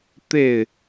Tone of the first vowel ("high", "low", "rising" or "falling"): falling